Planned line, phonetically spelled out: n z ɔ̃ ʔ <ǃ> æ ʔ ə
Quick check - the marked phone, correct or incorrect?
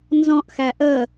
incorrect